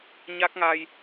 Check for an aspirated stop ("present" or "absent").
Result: absent